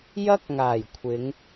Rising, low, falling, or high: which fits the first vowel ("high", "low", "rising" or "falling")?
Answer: high